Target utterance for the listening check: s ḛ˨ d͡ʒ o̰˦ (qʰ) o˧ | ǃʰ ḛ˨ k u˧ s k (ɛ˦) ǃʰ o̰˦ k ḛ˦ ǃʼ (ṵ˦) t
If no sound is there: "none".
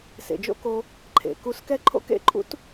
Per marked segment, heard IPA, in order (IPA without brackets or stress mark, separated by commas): k, ɛ˦, ṵ˦